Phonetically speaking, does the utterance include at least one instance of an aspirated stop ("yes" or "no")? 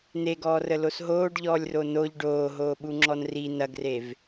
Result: no